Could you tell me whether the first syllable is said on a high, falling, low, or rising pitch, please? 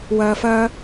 high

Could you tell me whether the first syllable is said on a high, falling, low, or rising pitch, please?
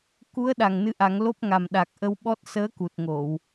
rising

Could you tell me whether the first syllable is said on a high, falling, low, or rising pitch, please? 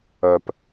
low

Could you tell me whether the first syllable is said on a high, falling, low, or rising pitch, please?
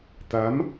rising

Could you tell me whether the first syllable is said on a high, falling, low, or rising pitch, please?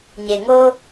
low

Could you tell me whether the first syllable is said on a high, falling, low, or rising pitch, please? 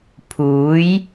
rising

